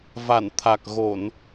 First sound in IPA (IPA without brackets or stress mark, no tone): v